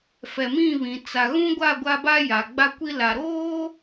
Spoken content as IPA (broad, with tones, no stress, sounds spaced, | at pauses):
f ɛ˨ m ĩ˦˨ β ĩ˨ t͡s a˨ ɣ ũ˦ ɡʷ a˦˨ ɡʷ a˦ b a˦ j a˨ ɡ͡b a˦ kʷ i˦ l a˨ ɾ oː˦